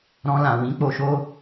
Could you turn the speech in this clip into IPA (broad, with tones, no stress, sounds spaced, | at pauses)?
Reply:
ɾ ɔ̃˧ l ã˨ w ĩ˨˦ k͡p o˧ ʃ o˦